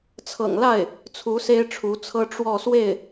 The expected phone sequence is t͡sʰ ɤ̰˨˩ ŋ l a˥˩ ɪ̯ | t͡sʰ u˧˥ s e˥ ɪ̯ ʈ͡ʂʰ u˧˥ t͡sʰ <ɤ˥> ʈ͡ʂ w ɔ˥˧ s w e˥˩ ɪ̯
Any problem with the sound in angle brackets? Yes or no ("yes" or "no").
no